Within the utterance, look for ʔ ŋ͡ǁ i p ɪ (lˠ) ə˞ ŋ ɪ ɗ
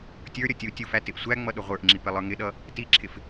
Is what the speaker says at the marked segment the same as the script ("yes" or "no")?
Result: yes